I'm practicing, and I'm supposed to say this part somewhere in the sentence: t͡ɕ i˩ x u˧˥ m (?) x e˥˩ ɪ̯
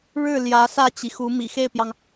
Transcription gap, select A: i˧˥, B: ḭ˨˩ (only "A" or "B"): B